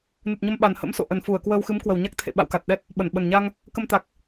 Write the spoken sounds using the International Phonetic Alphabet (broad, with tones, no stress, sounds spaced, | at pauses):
n ɨ˨˩ t̚ ɲ ə˧ m ɓ a˨˩ n h ə̰˧˥ m s o̰˧˨ ʔ ə˨˩ n f u˧˩ ə̯ k w əː˧ w x ɨ˨˦ m k w ə˨˩ w ɲ a˦˥ k̚ t̪ʰ ḛ˧˨ ɓ a̰˧˨ w k a˨˩ t̚ ɗ ɛ˦˥ t̚ | ɓ ə˧˩ n ɓ ə˨˩ n ɲ a˧ ŋ | k ə˧ m t̪ a˨˩ k̚